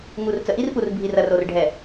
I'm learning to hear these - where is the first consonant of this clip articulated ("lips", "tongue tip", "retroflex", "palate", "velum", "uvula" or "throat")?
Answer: velum